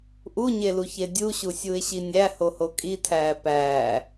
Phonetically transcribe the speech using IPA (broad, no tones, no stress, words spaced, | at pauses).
ʔuɲeluçe dʲuɕusʲuɪ̯ɕi nʲæhoho kʼitʰæː pæː